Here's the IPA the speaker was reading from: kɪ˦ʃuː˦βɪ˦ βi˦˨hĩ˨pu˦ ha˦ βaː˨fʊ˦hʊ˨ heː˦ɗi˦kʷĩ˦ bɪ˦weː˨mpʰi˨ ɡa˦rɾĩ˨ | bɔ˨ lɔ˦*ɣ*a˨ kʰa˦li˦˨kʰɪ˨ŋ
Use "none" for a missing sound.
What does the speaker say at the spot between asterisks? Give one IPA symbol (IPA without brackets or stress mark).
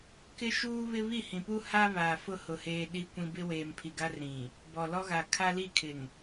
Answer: ɣ